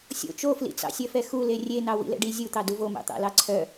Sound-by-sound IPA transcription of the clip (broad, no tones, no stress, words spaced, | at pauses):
sʲo̰ t͡ʃoflḭt͡sɑ̰ sʲœfɛxule rʲenɑ wḭlɛ̰ɖi zʲut̪ɑ duvomɑ̰t̪ɑ̰ lɑǀʰœ